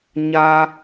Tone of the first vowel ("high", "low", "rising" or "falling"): high